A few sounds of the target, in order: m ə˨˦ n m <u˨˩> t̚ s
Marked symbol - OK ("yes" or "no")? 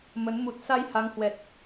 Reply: yes